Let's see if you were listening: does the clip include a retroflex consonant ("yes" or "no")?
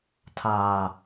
no